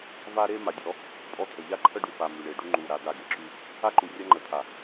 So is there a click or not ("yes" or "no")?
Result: yes